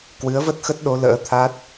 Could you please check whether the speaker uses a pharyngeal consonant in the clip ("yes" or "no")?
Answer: no